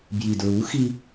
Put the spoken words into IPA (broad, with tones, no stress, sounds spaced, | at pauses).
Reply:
b j i˨ d ɹ u˨˦ x i˦